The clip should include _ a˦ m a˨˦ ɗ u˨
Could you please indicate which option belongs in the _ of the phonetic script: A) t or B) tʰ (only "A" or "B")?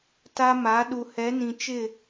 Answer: A